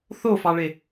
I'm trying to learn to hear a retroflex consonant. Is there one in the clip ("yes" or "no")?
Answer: yes